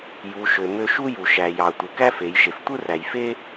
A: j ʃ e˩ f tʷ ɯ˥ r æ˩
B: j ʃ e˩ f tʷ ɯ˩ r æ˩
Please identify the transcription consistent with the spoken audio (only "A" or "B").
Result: A